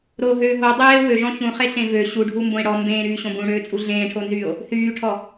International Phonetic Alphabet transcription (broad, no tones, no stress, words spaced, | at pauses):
ɾoɦøː ɦo dˤeː wøʒɔ̃ çũχeɬẽ vø ɕuɖʱumbõe̯ ɽɔ mbẽːɾyːɕõ bũɽøːt͡sʼu ɮẽːʈʰonzyːo̯ | θyːʈʰɔ